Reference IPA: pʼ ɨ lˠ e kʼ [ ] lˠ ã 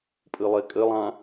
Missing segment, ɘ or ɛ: ɘ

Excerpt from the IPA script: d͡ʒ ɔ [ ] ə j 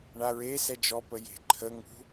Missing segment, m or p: p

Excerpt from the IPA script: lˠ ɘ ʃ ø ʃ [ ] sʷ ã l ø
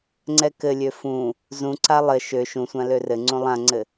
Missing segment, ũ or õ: ũ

